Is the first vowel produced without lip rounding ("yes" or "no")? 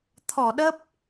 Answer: no